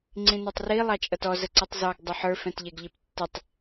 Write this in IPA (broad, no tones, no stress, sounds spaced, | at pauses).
ŋ͡ǀ ĩ n ə˞ tˤ r i lˠ ɑ t͡ʃʼ ʌ t ɔ z ə ǀ ʌ tˤ z ɑ ɡ dˤ ʊ ħ ə˞ f ɛ̃ t ʎ ɛ ɡ ʎ i p tː ɪ tˤ